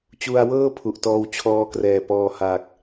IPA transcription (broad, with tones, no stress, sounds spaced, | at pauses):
t͡ɕ u˧ a̯ w ɤː˥˩ pʰ u˨˩ ʔ t ɔː˧ w t͡ɕʰ ɔː˧ k r ɛː˨˩ p ɔː˧ h aː˨˩ k̚